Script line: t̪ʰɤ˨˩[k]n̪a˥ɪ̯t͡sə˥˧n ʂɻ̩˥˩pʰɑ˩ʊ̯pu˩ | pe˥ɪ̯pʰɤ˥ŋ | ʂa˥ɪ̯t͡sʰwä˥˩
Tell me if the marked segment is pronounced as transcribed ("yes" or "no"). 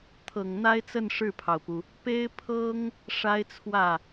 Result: no